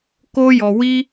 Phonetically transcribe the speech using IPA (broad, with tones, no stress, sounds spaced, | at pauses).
k o˦ j ɔ˧ w i˦